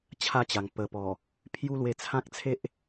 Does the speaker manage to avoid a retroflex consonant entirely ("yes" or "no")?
yes